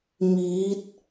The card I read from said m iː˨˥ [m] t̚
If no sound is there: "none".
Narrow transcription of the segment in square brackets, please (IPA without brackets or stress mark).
none